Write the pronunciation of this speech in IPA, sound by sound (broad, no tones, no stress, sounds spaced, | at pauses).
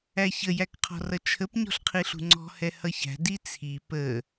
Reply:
æ ç ə j æ k qʰ ɔ̤ r ʌ t͡ʃʰ ə p ɲ ɔ̤ ɬ qʰ i ɬ ṳ ŋ͡ǀ ɔ̤ h ɛ h ʌ ç æ̤ d i t͡sʰ i p ə